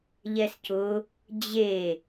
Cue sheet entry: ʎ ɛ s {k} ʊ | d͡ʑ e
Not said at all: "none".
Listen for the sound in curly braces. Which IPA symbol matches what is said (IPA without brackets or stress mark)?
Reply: c